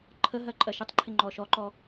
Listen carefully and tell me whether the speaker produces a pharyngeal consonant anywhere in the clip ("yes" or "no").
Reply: no